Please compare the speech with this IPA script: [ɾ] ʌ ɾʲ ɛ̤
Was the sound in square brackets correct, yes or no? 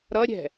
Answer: yes